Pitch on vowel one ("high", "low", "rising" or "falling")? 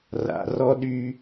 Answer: low